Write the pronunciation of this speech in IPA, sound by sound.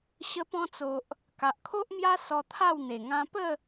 ɕ ə˧ p ɔ̃˧ t͡s o˨ ʔ | k a˨ ʔ kʰ o˦ ʔ m j a˦ s ɔ˧ t̪ʰ a˥˧ w n̪ e˨˩ ŋ ã˧ p ə˥˧

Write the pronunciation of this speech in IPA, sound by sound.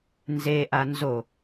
n z e ʔ a n z o

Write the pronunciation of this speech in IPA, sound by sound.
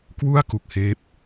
k w u˥˩ a̯ k u˨˩ k̚ h eː˦˥ p̚

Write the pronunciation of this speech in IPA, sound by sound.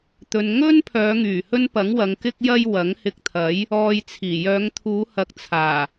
t̪ ɵ˧ n ŋ ɵ˥ n pʰ œː˨˧ ŋ yː˨˩ h ɵ˥ n p ɐ˨˥ ŋ w ɐ˨˧ ŋ k ɪ˥ k̚ j ɐ˥ j w ɐ˨˥ ŋ h ɪ˧ k̚ t̪ʰ ɐ˨˥ j | ɔː˧ j t͡sʰ iː˨˩ j œː˨˧ ŋ t̪ʰ uː˨˧ h ɐ˨ k̚ t͡sʰ aː˨˩

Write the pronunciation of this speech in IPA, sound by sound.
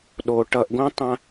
ɗ o ʈ ʌ ʔ ɡ õ tˤ ã

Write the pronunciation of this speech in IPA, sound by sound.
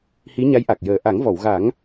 h i˧˥ ɲ a˧˥ j ʔ a˨˩ k̚ j əː˨˩ ʔ a˨˩˦ ŋ v ɔ˨˩˨ w ɣ a˨˩˦ ŋ

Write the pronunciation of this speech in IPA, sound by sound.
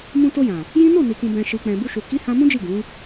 m ũ˧ t o˧ j ã˨ | j ĩ˦ n o˦˨ n i˨ k ũ˨ b ɛ̃˨ ʃ i˨ k͡p ɛ̃˨ b u˧ ʃ u˨ k i˨˦ h ã˧ m ũ˦ d͡ʒ i˦˨ ɡ ũ˨˦

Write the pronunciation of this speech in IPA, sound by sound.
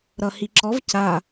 ɾ ʌ h i ǁ ɔ v c a

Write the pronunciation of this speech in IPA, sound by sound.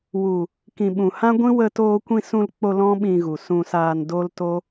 w u˨ | k ĩ˨ ɓ ũ˨ h ã˦ ɡʷ ĩ˦ w ə˧ t oː˧ kʷ ĩ˧ s ũ˧ l k͡p o˧ l ɔ̃˦ ɓ ĩ˧ ɣ u˨ s ũ˧ s aː˧ n d o˦ l t o˦

